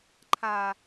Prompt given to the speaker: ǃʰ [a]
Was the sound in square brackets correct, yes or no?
yes